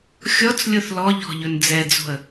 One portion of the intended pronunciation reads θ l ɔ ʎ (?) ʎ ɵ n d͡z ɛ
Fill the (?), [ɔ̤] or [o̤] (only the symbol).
ɔ̤